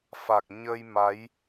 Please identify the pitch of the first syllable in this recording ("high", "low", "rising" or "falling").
low